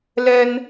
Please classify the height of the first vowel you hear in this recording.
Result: mid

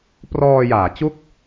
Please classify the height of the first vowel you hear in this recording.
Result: mid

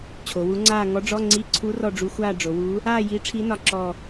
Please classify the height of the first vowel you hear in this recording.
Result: mid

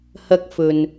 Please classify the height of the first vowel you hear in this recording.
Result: low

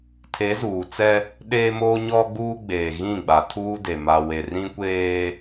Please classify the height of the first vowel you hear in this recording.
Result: mid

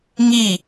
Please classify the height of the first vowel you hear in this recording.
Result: high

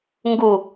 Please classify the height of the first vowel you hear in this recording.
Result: high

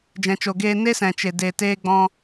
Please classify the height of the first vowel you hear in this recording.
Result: mid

